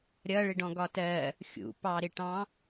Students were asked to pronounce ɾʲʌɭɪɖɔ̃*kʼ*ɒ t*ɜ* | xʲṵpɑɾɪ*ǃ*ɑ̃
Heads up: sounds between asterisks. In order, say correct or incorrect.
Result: incorrect: ɡ, correct, incorrect: ʈ

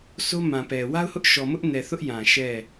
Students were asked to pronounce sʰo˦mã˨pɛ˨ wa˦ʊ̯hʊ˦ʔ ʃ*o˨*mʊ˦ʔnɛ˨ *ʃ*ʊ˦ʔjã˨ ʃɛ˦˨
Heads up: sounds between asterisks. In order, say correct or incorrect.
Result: incorrect: ɔ˨, incorrect: θ

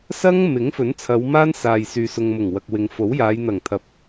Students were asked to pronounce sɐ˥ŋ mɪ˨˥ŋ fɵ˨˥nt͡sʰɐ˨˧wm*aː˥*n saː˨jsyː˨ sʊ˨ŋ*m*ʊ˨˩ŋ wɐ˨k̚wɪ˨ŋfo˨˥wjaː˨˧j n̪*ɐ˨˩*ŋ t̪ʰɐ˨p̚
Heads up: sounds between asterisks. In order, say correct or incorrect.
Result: correct, correct, correct

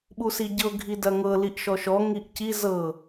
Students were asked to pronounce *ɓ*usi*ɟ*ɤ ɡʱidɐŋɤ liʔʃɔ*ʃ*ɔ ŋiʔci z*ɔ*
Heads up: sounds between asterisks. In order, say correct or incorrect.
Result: correct, correct, correct, incorrect: ɤ

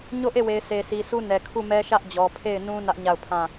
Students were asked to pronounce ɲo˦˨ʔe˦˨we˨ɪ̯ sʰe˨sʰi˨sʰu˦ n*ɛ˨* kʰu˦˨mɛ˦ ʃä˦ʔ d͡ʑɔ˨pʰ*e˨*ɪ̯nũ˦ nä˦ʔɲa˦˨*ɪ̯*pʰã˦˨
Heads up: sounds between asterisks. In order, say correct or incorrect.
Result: correct, incorrect: e˦˨, incorrect: ʊ̯

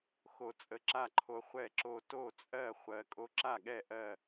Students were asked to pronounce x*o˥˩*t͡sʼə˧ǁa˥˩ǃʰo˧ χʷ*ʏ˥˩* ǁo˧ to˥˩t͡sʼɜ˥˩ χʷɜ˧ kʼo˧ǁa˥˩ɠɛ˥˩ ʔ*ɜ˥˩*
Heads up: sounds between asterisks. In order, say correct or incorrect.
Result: incorrect: o˧, incorrect: ɛ˥˩, correct

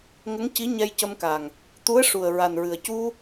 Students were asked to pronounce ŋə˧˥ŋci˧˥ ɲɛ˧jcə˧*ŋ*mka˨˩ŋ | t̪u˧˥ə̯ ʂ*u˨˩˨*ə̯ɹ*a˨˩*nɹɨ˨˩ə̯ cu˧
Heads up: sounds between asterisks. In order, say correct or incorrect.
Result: incorrect: none, incorrect: u˨˩, correct

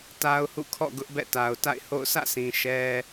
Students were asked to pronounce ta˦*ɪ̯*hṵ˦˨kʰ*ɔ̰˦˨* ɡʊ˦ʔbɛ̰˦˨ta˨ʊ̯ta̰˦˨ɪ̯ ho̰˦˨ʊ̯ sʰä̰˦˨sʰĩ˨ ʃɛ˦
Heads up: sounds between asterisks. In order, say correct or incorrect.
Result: incorrect: ʊ̯, correct

